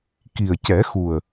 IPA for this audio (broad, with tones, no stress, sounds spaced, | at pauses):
k i˨˩ ə̯ c ɛ˨˩˦ x u˨˩ ə̯